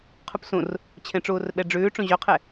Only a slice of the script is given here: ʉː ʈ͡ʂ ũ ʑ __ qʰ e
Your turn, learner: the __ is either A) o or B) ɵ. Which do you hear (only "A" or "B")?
B